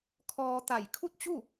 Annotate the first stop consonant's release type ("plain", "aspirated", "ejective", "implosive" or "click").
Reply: aspirated